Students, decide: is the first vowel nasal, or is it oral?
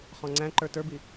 nasal